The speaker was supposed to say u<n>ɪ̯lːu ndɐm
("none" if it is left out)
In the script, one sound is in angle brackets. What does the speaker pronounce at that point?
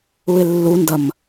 none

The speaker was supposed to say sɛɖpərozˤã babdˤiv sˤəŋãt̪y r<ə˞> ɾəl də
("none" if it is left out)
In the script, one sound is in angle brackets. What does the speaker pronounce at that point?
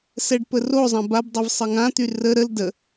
ə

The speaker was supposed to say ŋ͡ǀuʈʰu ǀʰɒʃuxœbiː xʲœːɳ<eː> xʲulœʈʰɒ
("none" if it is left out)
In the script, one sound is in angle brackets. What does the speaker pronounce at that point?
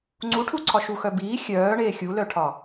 eː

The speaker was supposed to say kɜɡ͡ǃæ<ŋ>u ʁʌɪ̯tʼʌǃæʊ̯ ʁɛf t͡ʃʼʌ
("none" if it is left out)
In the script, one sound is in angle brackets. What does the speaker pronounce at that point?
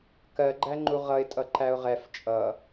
ŋ͡ǃ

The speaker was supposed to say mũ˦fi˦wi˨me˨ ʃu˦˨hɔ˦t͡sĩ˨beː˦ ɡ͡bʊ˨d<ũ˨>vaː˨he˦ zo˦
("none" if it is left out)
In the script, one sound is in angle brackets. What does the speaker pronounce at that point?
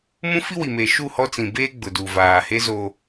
u˨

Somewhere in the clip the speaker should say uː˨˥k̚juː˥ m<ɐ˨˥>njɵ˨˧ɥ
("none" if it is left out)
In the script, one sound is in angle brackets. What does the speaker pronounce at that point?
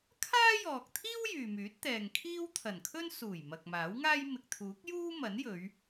ɐ˨˥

